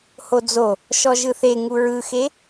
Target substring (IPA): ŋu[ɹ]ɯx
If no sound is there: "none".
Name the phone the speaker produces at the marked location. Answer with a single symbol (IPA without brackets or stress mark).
ɹ